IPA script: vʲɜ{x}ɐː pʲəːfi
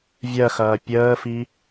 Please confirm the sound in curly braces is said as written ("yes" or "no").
yes